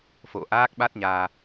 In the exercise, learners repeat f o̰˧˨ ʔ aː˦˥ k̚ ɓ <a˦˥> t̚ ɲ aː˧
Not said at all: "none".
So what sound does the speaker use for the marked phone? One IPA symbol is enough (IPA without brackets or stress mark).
a˦˥